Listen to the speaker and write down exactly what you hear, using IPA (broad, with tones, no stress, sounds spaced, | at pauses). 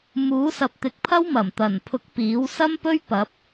m uː˨˥ s ɐ˨ p̚ t̪ ɪ˨˥ k̚ pʰ ɐ˥ w m ɐ˨˩ m t̪ ɐ˨˩ n pʰ ʊ˨˥ k̚ p iː˨˥ w s ɐ˥ m p ɵ˥ ɥ p ɐ˨˥ p̚